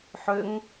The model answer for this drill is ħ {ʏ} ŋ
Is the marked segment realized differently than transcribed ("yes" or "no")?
no